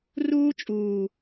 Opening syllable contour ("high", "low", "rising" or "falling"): high